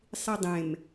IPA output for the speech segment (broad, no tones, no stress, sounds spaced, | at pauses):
sˤ i dˤ ẽ m